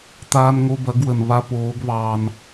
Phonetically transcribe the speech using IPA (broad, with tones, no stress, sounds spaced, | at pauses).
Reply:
t̪ aː˧ n ŋ o˧ b ɐ˨˦ ɡ w ə˨ n β a˧ p oː˨˦ ɡ β ɑː˧ n